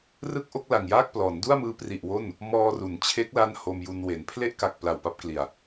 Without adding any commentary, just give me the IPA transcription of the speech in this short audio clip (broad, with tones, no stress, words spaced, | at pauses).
rɯ˥˩k̚ʔo˥˩k̚la˨˩ŋjaː˥˩k̚ plɔː˩˦n du˥˩a̯mɯː˦˥pri˨˩ʔ wo˥˩n | mɔː˧ru˩˦nt͡ɕʰe˦˥k̚ la˥˩nho˧mju˧n we˩˦n pʰle˥˩ʔka˨˩k̚ pla˨˩wpa˥˩p̚kli˨˩a̯